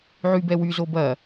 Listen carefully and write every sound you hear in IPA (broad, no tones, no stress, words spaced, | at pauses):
ʕybɛwy zobɐ